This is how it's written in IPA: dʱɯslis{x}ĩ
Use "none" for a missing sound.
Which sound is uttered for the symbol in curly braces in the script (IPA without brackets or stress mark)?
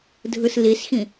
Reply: x